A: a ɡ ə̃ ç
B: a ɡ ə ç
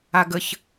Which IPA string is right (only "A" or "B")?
B